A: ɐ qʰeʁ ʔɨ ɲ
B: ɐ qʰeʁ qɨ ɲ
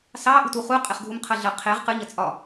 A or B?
B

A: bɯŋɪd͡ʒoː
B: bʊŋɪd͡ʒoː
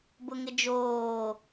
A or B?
B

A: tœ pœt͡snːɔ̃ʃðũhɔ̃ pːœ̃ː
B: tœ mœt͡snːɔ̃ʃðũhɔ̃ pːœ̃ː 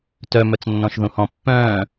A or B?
B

